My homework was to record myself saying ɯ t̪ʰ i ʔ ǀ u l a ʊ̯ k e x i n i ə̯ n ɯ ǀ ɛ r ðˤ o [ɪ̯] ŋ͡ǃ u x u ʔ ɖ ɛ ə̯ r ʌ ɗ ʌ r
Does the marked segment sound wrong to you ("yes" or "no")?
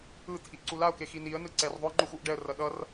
no